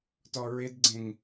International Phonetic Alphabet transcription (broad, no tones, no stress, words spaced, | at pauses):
tɔɹɪdɡ͡ǀẽŋ